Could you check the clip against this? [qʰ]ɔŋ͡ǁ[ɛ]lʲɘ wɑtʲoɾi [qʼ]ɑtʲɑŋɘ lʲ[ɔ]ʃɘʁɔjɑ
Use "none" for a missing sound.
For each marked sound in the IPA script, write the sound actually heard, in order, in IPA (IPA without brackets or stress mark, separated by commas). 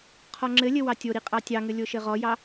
qʰ, ɘ, qʼ, o